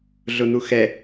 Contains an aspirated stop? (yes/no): no